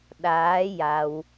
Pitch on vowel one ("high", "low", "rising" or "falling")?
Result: rising